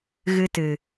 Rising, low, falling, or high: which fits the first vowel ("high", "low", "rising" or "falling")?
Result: high